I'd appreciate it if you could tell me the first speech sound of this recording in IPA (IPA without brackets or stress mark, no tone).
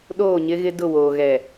ɗ